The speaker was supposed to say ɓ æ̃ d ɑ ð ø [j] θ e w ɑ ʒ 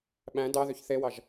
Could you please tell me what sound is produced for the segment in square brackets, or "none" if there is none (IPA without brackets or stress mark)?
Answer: ç